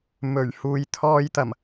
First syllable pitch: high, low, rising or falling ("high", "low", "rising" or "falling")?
low